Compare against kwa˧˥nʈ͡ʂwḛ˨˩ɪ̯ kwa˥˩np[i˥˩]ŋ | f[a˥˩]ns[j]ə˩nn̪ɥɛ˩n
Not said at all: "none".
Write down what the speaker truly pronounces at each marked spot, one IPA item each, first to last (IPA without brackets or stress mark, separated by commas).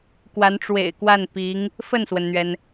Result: i˧˥, ə˥˩, w